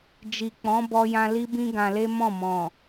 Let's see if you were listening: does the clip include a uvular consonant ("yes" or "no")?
no